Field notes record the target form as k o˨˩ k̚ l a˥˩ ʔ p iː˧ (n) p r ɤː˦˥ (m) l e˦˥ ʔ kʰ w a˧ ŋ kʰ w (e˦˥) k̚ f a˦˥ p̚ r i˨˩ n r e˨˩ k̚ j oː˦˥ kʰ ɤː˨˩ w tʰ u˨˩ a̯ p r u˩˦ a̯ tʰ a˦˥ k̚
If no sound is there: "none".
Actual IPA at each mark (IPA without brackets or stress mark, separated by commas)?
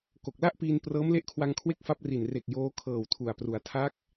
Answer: n, m, e˥˩